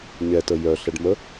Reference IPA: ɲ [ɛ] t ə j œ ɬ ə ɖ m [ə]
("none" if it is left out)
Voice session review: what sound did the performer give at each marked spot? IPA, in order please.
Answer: ɛ, ə

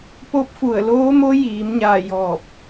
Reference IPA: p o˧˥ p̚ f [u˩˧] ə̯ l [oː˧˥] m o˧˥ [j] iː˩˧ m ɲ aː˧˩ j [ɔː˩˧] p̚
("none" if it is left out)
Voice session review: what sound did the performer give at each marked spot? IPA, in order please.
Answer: u˧˩, oː˧˥, j, ɔː˧˩

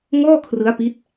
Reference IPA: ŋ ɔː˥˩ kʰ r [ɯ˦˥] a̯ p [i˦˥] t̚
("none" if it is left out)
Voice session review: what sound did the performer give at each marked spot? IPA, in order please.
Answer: ɯ˦˥, i˦˥

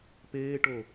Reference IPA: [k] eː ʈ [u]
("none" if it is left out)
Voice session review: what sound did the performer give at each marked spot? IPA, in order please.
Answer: p, o

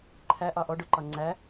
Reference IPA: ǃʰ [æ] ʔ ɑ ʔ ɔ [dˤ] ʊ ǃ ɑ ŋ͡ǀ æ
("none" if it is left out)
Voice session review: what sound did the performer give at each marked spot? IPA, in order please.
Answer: æ, ɖ

